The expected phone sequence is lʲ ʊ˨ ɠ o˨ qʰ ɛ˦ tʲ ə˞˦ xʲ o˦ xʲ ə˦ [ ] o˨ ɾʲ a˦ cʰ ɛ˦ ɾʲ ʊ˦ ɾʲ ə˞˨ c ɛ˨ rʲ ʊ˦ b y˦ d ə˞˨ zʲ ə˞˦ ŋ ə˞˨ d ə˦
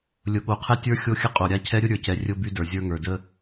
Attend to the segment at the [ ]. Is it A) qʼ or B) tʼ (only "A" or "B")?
A